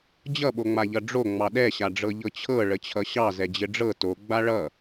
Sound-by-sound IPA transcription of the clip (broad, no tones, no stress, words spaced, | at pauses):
d͡ʑʌɓoŋ͡maʎʌ ɖ͡ʐo ŋ͡mɑɗɛɕaɖ͡ʐɤ ʎɤt͡ɕʰɤ ɭət͡ɕʰʌɕɑ zɛd͡ʑɘɖ͡ʐɤ to ɡ͡baɭʌ